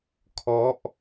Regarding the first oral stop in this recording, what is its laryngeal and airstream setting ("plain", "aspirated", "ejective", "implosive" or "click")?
aspirated